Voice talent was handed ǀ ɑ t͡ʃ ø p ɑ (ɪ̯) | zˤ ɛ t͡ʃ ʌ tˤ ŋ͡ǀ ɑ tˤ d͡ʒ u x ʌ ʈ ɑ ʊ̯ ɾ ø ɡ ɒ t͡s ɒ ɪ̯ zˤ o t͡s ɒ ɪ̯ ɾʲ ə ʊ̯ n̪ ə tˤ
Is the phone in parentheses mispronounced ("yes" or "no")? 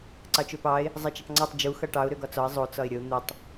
no